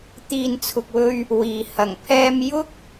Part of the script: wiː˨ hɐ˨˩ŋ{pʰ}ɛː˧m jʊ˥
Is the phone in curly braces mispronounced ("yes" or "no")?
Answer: no